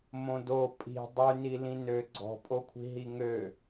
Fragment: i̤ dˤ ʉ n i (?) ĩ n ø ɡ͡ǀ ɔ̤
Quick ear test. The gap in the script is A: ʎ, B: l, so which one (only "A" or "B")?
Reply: B